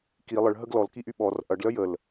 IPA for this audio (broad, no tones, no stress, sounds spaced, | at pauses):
k i lˠ ə ɭ ɦ ə ɡ l ɔ l k i ʔ y ɓ ɔ r ʔ ɐ ɖ l œ j ə l